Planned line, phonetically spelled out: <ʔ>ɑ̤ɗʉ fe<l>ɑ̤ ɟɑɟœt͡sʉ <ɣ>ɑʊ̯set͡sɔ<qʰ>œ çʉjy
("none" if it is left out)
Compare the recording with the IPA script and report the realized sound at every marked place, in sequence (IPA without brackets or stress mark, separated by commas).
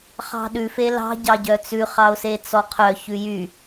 χ, l, χ, qʰ